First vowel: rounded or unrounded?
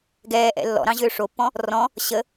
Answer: unrounded